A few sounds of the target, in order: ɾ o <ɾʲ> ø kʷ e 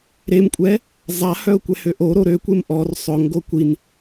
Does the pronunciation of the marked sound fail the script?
yes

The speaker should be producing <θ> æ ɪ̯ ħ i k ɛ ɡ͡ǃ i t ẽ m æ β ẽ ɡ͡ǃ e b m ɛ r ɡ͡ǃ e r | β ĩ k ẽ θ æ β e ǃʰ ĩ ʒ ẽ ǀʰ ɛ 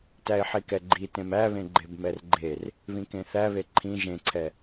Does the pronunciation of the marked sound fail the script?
yes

